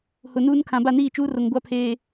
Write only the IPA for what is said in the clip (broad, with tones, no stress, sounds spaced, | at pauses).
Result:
h ʊ˨ n uː˦ n kʰ ã˨ b a˦˨ n iː˦˨ t͡ʃ uː˦ r o˨ ŋ ɡʷ a˦ pʰ eː˨